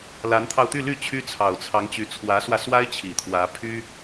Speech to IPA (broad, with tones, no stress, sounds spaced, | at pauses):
l a˧˥ n t̪ʰ ɑ˧ ʊ̯ t̪ y˥˧ l y˥˩ t͡ɕʰ y˥ t͡sʰ ɑ˨˩ ʊ̯ t͡sʰ ɑ˧˥ ŋ t͡ɕ y˧˥ t͡sʰ w ä˧˥ s w ä˧ s w a˥ ɪ̯ t͡ɕʰ i˨˩ t̪ʰ w ä˧˥ pʰ y˥